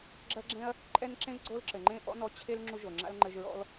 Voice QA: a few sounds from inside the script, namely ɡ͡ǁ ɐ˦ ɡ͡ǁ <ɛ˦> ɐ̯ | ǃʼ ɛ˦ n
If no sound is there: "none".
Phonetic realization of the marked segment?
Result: ɛ̃˦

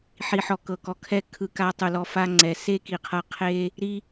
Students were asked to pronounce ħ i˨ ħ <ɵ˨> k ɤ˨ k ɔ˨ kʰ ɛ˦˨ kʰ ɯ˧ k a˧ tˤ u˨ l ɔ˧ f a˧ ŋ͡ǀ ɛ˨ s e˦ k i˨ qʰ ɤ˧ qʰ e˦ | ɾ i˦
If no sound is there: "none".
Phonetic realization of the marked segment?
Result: ɔ˨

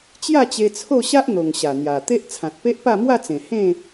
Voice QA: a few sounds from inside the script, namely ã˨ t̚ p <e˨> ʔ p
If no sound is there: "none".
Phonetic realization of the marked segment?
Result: e˦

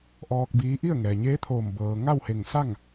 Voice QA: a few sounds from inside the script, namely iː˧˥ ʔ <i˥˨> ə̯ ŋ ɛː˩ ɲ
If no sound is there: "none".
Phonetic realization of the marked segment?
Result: i˥˨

